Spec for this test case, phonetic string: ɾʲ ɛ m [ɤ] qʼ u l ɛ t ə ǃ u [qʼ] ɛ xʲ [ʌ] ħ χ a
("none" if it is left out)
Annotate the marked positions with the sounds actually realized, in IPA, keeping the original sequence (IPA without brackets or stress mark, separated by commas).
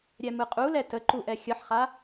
ɯ, ʔ, ʌ